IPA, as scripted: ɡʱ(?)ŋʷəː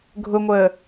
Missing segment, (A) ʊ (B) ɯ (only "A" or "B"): A